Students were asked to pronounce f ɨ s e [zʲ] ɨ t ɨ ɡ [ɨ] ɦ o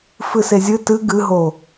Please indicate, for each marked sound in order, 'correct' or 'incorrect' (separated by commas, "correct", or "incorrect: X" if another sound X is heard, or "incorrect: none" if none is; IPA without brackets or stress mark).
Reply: correct, correct